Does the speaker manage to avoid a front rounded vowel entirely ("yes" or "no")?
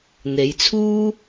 yes